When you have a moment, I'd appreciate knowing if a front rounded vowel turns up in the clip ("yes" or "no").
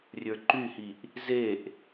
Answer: yes